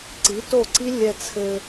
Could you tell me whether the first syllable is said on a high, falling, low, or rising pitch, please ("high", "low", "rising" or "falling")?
rising